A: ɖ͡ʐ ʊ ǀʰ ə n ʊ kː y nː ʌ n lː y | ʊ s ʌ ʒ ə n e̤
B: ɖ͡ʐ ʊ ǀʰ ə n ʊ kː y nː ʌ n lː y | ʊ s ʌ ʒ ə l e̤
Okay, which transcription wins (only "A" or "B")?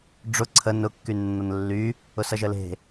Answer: B